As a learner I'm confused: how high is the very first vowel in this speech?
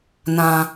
low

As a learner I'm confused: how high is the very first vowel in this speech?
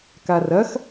low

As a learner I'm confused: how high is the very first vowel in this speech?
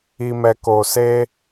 high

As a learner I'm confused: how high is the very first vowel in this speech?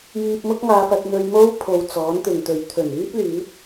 high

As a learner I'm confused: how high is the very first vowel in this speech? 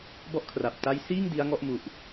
mid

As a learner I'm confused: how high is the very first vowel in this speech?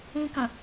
high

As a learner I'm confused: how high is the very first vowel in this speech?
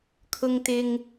high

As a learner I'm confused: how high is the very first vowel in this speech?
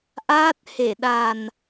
low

